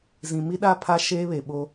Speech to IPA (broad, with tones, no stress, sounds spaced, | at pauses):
z ĩ˨ m i˦ ɗ a˦ pʰ a˦ ʃ eː˦ β e˨ ɓ o˦